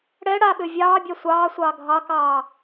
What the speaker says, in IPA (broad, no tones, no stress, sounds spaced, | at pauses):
ɽ ɛ ɽ a ɓ ø vʲ ɑː bʲ ɑ sʷ ɑː sʷ ɑː ɡʱ ɑ k ɑː